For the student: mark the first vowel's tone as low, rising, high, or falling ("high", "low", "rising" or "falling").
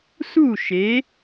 falling